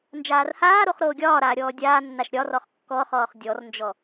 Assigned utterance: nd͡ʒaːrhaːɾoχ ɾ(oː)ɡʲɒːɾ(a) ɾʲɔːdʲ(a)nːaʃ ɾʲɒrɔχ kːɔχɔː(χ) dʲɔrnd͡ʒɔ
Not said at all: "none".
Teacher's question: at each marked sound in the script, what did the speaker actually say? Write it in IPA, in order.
oː, aː, aː, χ

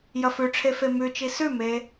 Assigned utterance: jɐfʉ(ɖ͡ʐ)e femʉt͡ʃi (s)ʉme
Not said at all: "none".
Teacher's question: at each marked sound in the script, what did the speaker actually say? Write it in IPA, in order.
ʈ͡ʂʰ, s

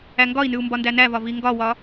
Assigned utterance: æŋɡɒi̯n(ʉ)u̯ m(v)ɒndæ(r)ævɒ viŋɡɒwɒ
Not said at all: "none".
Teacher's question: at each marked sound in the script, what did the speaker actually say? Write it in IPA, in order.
ʉ, b, n

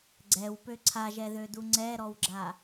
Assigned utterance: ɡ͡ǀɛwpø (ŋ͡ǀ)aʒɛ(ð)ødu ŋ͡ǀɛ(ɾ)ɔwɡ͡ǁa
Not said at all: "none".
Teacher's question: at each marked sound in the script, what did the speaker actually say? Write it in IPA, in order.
ǀʰ, ð, ɾ

